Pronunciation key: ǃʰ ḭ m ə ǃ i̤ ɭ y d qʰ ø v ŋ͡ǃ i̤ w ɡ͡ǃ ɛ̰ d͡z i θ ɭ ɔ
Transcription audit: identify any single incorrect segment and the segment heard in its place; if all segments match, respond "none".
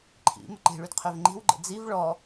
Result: θ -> v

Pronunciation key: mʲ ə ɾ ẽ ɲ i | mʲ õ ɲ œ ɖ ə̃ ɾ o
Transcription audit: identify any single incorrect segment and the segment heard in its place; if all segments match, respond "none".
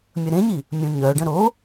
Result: none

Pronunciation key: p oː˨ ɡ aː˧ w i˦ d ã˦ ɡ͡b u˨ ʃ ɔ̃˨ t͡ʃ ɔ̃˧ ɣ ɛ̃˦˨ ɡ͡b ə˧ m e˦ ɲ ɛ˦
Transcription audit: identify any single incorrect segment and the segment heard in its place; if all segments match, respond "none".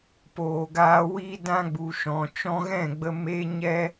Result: none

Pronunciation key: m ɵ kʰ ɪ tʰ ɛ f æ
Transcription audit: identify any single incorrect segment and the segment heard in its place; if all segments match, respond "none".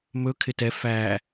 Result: tʰ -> t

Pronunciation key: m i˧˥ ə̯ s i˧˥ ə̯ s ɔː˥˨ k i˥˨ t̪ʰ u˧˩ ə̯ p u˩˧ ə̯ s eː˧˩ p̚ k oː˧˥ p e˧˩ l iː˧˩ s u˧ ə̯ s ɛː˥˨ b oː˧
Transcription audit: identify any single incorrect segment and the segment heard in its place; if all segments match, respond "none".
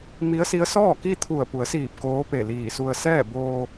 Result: eː˧˩ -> iː˧˩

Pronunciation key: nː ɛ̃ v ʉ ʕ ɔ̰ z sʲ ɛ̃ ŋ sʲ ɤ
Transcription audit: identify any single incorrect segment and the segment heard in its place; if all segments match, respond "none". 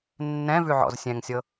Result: none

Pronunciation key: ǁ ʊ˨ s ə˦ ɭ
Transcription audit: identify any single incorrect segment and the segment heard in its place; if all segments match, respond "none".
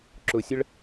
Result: s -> sʲ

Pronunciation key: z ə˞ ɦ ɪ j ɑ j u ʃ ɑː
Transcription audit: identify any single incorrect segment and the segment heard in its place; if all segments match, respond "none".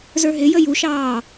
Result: ɑ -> ə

